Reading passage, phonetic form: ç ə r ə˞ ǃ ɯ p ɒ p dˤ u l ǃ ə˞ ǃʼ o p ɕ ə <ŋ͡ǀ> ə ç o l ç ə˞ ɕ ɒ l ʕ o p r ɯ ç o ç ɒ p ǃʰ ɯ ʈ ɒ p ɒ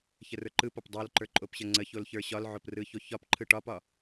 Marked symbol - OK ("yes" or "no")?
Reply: yes